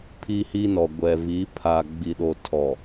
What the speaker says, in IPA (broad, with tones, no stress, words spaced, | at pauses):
pʰi˦hiː˦nɔ˨ ɡʷɛ˨vi˨˦ pʰa˨ ɡ͡bi˨ɗo˨ tʰɔ˨